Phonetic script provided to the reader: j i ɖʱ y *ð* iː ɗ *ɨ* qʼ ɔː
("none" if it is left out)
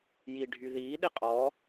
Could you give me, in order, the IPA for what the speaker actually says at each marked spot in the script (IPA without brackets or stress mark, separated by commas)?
ð, i